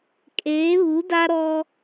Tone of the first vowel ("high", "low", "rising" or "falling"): rising